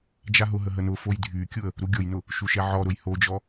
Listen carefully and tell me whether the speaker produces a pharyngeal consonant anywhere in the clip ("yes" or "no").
yes